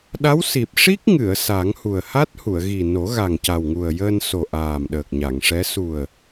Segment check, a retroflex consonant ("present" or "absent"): present